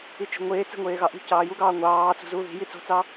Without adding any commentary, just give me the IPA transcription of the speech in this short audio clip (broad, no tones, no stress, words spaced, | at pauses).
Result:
it͡ʃi̤ŋʷeː t͡se̤ŋʷeːɣɑʔṳ cɑːjuɡɑː ŋʷɑːt͡sṳzuː ði̤ji t͡so̤t͡sɑ